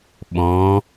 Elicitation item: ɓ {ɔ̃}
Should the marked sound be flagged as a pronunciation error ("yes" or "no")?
no